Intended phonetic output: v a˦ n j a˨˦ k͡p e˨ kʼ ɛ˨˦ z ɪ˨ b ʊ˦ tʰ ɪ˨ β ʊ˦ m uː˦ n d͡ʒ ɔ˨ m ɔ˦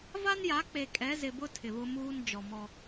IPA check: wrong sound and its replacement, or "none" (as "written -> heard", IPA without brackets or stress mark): none